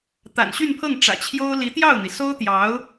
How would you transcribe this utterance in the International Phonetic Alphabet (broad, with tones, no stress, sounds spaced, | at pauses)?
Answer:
t̪ a̰˨˩ n ɕ y˥˧ n pʰ ɤ˥˩ ŋ ʈ͡ʂ ä̰˨˩ t͡ɕʰ j o˥ ʊ̯ l i˧˥ t̪ j ɑ˥˩ ʊ̯ n̪ i˩ s o˥ ʊ̯ t̪ j ɑ˧˥ ʊ̯